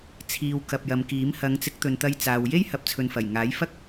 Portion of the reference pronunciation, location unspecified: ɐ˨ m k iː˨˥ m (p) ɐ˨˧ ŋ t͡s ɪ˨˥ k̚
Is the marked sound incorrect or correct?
incorrect